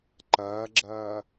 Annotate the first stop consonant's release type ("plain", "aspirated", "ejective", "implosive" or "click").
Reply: click